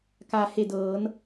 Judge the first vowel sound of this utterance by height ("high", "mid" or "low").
low